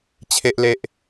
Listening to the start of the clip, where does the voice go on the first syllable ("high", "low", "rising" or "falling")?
low